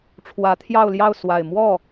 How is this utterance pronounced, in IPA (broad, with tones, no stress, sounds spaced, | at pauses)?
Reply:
ʈ͡ʂʰ w ä˧˥ t̪ʰ j ɑ˥˧ ʊ̯ l j ɑ˥˧ ʊ̯ s w a˥˧ ɪ̯ m w ɔ˥˩